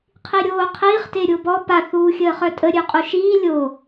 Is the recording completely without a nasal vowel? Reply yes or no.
yes